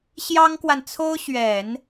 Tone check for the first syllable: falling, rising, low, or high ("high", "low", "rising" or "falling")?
high